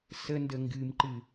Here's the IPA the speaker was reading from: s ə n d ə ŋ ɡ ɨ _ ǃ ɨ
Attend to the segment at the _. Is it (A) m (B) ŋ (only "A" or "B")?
A